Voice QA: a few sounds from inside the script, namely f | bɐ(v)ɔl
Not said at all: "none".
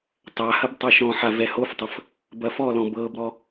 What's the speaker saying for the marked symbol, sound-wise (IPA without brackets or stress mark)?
f